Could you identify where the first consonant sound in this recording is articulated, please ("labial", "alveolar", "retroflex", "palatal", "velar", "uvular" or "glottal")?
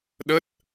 alveolar